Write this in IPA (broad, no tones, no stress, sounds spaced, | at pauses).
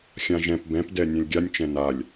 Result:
xʲ ã ʒ ɛ̃ p b ɛ̃ p d ɛ nʲ ɛ̃ lʲ ɡʲ a nʲ t͡ʃ ɛ̃ n a lʲ